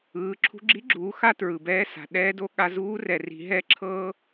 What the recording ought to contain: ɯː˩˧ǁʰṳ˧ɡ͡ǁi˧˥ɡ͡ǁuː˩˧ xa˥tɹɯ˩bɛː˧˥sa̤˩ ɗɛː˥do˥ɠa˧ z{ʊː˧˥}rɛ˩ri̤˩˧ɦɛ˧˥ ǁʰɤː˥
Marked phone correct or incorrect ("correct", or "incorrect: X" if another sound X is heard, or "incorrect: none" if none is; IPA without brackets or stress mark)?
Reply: incorrect: uː˧˥